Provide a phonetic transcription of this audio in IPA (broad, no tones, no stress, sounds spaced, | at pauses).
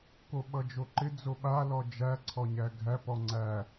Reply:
k o ɓ ʌ d͡ʒ o ǃ ɪ d͡z o ɓ a l ɔ d͡ʒ æ ǀʰ ɔ ɲ æ ɡʱ æ p ɔ ŋ͡ǀ æ